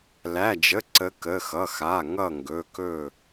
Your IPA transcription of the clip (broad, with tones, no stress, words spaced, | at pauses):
læ˩˧˩d͡ʒə˩˧˩ ǀə˨˦kə˩˧˩ xʌ˩˧˩xa˩˧˩ŋʌ˧˩ ŋɡɵ˩˧˩kɵ˧˩